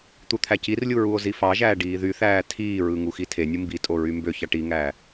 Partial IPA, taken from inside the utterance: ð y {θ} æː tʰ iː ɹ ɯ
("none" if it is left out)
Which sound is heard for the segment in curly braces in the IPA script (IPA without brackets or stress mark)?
θ